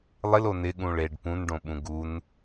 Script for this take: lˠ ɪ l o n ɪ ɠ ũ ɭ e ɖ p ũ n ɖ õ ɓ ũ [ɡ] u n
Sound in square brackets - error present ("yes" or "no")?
no